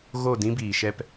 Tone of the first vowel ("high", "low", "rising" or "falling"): falling